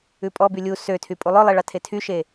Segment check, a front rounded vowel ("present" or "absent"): present